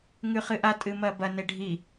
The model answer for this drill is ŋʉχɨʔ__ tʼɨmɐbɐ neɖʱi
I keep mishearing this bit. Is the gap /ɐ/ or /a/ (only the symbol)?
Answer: a